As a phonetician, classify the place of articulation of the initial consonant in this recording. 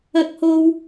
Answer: velar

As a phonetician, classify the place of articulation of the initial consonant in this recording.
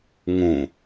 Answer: velar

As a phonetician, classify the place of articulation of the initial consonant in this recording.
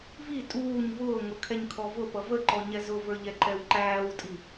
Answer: labial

